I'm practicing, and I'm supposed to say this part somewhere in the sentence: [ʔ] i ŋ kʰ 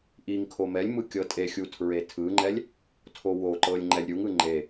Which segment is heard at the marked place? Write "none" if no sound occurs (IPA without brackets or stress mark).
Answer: ʔ